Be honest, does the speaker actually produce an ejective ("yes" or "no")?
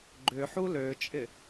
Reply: yes